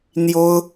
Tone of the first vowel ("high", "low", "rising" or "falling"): high